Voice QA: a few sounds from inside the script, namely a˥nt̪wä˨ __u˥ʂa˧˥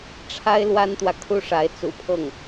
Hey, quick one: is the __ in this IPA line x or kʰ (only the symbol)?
kʰ